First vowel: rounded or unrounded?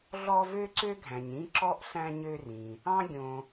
rounded